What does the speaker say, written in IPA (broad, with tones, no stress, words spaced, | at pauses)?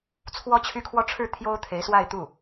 t͡sʰwɔ˥t͡ɕʰy˥kʰwɔ˥˧ ʈ͡ʂʰɻ̩˥˩ t̪ʰjo˥ʊ̯t̪ʰe˧˥ɪ̯swa˥˧ɪ̯t̪u˥˩